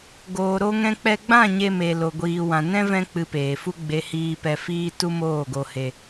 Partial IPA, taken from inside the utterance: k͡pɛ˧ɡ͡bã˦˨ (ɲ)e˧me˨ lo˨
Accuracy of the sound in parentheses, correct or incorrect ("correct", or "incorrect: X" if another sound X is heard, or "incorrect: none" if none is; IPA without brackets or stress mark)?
correct